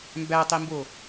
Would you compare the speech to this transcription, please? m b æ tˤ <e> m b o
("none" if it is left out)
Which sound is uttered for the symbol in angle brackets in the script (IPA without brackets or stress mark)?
i